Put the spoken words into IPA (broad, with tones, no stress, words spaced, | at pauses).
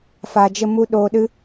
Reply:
fa˧d͡ʒə˦mu˦ ɗoː˧ɗɨ˦